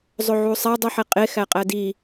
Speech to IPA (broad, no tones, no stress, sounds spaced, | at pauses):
zˤ o ʕ u sˤ æ dˤ u ħ e qʼ e x æ qʼ æ d i